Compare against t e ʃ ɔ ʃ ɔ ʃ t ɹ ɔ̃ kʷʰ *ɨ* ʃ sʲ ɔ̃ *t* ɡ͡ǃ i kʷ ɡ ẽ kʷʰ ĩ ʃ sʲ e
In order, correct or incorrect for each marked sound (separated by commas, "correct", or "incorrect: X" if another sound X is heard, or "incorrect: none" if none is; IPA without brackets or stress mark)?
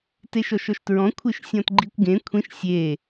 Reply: correct, correct